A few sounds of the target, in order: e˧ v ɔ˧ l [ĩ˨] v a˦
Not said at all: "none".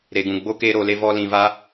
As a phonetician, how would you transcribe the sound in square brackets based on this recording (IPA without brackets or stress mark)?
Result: ĩ˨